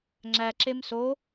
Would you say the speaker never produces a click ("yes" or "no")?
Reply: no